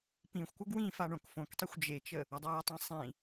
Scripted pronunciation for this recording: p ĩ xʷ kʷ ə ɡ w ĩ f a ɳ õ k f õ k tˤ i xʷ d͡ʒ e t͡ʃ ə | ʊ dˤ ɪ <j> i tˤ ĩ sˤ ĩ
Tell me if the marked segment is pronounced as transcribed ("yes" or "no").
yes